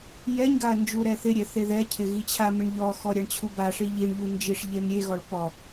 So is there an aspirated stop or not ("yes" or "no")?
yes